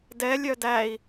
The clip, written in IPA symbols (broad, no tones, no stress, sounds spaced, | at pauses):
d ɛ lʲ œ d æ i̯